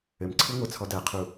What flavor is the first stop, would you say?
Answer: click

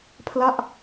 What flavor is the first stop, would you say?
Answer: aspirated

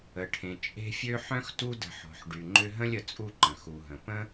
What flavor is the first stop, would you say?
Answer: aspirated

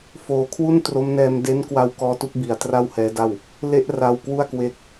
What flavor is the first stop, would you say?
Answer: aspirated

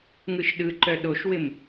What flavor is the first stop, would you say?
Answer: implosive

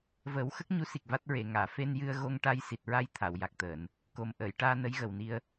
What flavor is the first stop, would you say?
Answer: plain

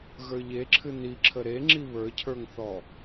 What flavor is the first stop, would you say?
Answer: click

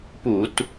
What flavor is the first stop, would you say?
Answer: plain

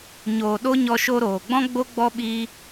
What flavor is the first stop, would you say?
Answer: implosive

